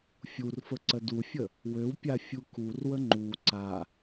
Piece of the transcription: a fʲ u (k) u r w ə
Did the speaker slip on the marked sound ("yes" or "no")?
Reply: no